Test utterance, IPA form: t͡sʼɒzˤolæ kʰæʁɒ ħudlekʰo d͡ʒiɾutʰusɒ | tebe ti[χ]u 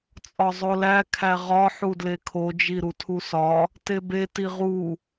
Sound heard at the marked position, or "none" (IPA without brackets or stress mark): ʁ